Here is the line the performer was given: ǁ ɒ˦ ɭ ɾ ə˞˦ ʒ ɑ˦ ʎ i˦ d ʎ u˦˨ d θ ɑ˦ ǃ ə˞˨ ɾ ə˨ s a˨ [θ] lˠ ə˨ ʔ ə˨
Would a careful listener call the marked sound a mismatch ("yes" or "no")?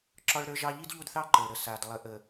yes